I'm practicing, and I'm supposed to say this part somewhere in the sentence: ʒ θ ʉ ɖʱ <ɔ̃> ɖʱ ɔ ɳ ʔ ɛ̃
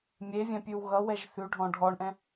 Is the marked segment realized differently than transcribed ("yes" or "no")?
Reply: no